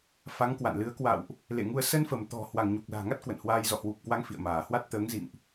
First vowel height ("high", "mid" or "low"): low